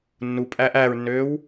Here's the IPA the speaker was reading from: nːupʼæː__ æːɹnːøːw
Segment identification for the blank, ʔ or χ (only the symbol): ʔ